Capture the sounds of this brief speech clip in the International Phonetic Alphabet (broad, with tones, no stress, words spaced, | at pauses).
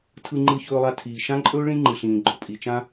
tʰɯ˧ŋ͡ǃɯ˧çɵː˧lˠa˧ tʰiː˩ʃã˥ǃʼɵː˥ ɭĩ˥ŋ͡ǃɯ˩ɬĩː˩ ɡ͡ǃʊ˩pʼi˩t͡ʃã˥